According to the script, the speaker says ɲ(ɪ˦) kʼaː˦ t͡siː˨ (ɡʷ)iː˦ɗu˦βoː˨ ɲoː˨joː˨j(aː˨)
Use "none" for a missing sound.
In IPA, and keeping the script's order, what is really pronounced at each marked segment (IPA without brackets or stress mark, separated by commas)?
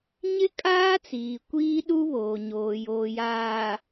ɪ˦, kʷ, aː˨